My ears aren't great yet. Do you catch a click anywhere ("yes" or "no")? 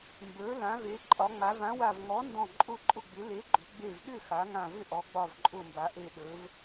yes